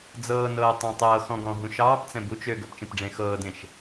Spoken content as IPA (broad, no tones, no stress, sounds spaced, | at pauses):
d͡z ɤː n ɤː tˤ ɑ̃ tˤ ɤː x ɔ̃ ɡ ɔ̃ ɦ ũ ʃ ɑː p t͡s ɛ̃ b u t͡ʃ ø ɡ ɵ p t͡ʃ ẽ p ɖ͡ʐ ẽː x ɤː d ẽ ʃ